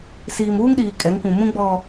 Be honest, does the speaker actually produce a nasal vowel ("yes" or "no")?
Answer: yes